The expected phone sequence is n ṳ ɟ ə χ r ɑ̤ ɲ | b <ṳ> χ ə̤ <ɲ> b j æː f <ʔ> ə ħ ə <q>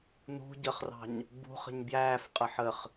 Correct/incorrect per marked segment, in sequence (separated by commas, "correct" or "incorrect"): correct, correct, incorrect, incorrect